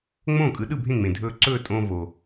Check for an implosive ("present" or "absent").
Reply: present